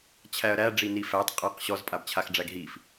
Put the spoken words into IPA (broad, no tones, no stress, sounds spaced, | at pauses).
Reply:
t͡ɕʰ æ ɐ̯ ɾ æ ɖ͡ʐ i n i f æ tˤ qʼ a q ɕ ɔ z pʼ a b t͡ɕʰ a x ɖ͡ʐ æ ɡ ɦ i f